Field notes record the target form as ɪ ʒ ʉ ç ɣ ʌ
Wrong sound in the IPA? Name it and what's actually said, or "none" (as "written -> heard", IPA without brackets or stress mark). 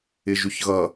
none